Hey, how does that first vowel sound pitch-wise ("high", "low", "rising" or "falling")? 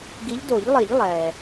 rising